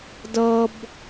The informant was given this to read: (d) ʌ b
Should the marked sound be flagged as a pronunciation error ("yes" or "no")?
no